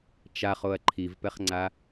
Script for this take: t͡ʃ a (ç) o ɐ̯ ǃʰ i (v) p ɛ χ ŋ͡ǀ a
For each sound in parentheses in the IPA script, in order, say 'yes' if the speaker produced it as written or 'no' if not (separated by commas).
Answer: no, yes